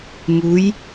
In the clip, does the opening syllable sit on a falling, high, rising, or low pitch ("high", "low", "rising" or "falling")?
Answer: rising